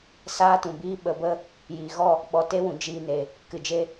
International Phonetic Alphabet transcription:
s aː˦ t ũ˨ b iː˦ ɓ ə˨˦ b ə˦ | j iː˨ ɣ ɔ˦˨ | ɓ ɔ˧ t e˦ w ũ˨ d͡ʒ iː˧ n e˨ | k ɨ˨ d͡ʒ e˦

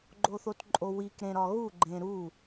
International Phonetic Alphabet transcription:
ɡ͡ǃ o θ o t ǃʼ o w i k ɾ ẽ ɾ ɒ ɣ u ɡ͡ǃ ẽ ɾ u

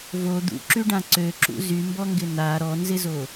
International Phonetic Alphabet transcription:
v o d̪ ṵ ǁ y ɖ ã ǀ ø ǁ ṵ z y m b ɔ ŋ ɡ ɪ n a ɾ ɔ n z ɪ z o

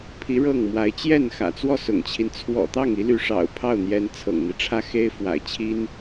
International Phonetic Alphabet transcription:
pʰ i˧˥ ɻ ɤ˥˩ ŋ m w a˧˥ ɪ̯ t͡ɕ j ɛ˥˩ n x ä̰˨˩ t͡s w ɔ˥˩ s ʊ̰˨˩ ŋ t͡ɕʰ i˦ n t͡sʰ w ɔ̰˨˩ t̪ ɑ˥˩ ŋ i˧˥ l y˧˥ ʂ ɑ̰˨˩ ʊ̯ pʰ ɑ˥˩ ʊ̯ n̪ j ɛ˧˥ n t͡sʰ ɤ̰˨˩ ŋ n̪ i˦ ʈ͡ʂʰ ä˥ x e˥ ɪ̯ f w a̰˨˩ ɪ̯ t͡ɕʰ i˥ n

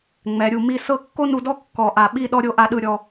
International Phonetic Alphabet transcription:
ŋ͡m ɛ˩˧ ɾʲ u˧˩ m i˥˧ s ɤ˥˧ kː o˥ n u˧ d ɔ˥ kː ɔ˧˩ ʔ a˧˩ ɓ i˥˧ ɗ ɔ˥ ɾʲ o˥˧ ʔ a˥˧ ɗ ɯ˥˧ ɾʲ ɔ˧

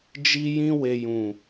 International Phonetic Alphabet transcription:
d͡ʒ i˧ j ĩ˧ w e˨ j ũ˨

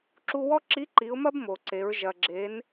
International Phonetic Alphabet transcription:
ǁ u˧ w ɔ˥ ǁ i˧˥ ǃ i˩˧ ʊ̯ m ɐ˥ b m o˩ ǀ e˩˧ ɹ ʒ ɐ˩ ɡ͡ǁ e˩˧ n

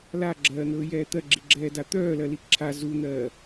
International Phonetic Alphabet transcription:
l a ɡ͡ǁ ɜː n̪ ɵː j ɛː t̪ ɜ ɡ͡ǁ i ɡ͡ǁ ɛː d a t̪ œː l ɜ l i ǁʰ a z u n̪ ɜː

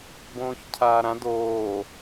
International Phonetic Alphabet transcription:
b õː ç cʰ aː ɾ ã d oː

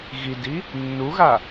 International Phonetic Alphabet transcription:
ɣ i d i | nː u ɣ a

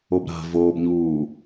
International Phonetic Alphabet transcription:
o b ɾ a̤ v oː b ɲ uː

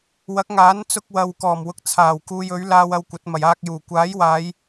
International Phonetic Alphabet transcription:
w ɐ˨˥ k̚ ŋ aː˨˥ n t͡s ʊ˧ k̚ w ɐ˨ w k ɔː˨˩ m w ʊ˨˥ k̚ t͡sʰ aː˨˩ w k uː˧ j ɵ˨˥ ɥ l aː˧ w ɐ˧ w kʷ ɐ˨˥ t̚ m ɐ˨˩ j aː˧ k̚ j uː˨˩ kʷ aː˨˥ j w aː˨˧ j

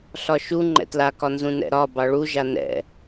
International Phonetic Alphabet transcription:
ɬ ɒ ʃ u ŋ͡ǃ ɛ̰ t l a k ɒ n z ũ n ɛ̰ ɾ ɒ b ɑ ɭ u ʒ a n ɛ̰

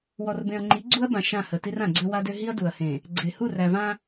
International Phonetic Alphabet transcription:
w ɔ˨ r b ẽ˨ ɐ̯ ŋ͡ǃ i˨˦ ɡ͡ǀ u˦ ɐ̯ b ã˨ ʃ ã˦˨ h ə˨ t i˦ r ã˨ ɡ͡ǀ ø˦ w a˦ d ø˦ ɦ i˦ ɐ̯ d u˨ ɐ̯ h ẽ˨ | ɡ͡ǀ e˨ h u˦˨ r æ˨ v ã˦

